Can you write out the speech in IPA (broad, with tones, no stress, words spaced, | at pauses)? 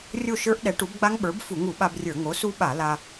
rʲo˥˨ʃə˞˦˥ʔɗɛ˩˥ʈu˩˥b ɡ͡ba˦˥ŋɓə˞˩˥b fu˧˩˧ŋu˧˩˧ɓa˧brʲə˞˧˩˧ ŋo˩˥su˦˥ɓa˧˩˧la˧